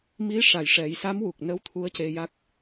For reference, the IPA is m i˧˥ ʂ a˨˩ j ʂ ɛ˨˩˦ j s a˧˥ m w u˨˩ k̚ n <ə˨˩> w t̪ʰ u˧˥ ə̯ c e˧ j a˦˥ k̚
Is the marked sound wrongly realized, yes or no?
yes